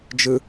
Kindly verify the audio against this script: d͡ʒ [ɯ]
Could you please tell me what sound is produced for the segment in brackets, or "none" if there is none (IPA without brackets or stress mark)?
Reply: ɯ